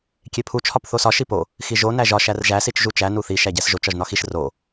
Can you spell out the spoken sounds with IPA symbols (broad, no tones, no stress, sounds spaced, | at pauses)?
kʲ e pʰ u t͡ʃʰ ɒ p θ o s ɒ ʃ i p o | x i ʒ o n æ ʒ ɒ ʃ æ r ʒ æ s i t͡ʃ ʒ u t͡ʃ æ n u θ i ʃ æ ɟ æ s ʒ o t͡ʃ ɒ ʒ n ɒ x i ʃ r o